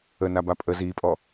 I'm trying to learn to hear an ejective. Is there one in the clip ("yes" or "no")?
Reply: yes